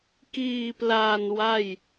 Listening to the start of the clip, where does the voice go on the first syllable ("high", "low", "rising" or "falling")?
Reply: low